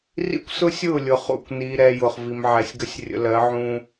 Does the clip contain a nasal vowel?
yes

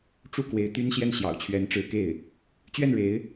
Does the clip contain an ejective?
no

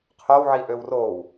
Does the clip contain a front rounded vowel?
yes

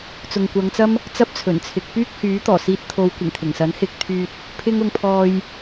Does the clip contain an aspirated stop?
yes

